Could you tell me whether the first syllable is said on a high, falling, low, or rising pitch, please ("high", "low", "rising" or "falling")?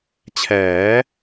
rising